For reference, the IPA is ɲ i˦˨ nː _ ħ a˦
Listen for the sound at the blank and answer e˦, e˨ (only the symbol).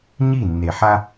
e˨